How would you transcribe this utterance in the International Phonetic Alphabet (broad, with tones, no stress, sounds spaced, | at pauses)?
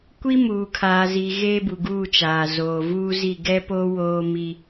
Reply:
kʷ i˦ m uː˨ kʰ aː˨ z i˨ ɣ eː˦ b u˨ ɡ uː˦˨ t͡ʃ aː˨ z oː˨ v uː˦ z i˦˨ ɡ ɛ˦ p o˦ w oː˦ m i˦